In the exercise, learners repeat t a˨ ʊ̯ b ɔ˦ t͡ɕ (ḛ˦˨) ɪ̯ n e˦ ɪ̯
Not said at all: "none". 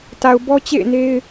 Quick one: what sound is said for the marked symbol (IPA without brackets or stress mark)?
ḛ˦˨